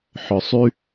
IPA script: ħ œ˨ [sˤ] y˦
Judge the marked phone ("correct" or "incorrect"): correct